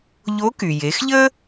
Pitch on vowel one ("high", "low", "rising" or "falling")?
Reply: rising